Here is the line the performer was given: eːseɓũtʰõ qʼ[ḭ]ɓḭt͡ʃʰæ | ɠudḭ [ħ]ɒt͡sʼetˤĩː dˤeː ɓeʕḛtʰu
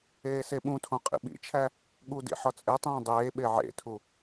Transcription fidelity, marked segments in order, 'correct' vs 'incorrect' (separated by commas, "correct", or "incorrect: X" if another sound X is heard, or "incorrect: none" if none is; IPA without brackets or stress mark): correct, correct